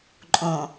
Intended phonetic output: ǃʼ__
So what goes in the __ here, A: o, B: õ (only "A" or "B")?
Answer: B